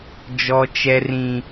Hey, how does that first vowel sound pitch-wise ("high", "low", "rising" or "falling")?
high